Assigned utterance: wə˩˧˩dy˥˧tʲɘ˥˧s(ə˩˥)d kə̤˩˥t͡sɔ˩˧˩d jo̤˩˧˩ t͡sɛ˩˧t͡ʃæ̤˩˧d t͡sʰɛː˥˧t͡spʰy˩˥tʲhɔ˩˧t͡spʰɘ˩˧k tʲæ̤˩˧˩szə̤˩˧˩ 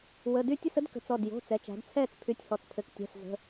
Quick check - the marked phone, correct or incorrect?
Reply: correct